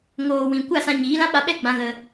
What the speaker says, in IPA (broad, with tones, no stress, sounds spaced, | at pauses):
ŋ oː˨ w ĩ˨ kʷ a˦˨ s ã˧ ɲ iː˨˦ l ã˦ ɓ a˧ ɓ ɛ˦ ɡ͡b ã˧ ɣ ə˧